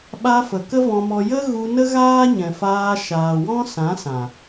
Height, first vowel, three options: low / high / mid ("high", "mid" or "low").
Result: low